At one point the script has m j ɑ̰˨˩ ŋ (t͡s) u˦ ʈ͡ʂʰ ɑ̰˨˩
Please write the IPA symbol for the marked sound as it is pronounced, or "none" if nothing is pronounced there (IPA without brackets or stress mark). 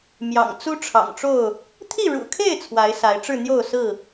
t͡s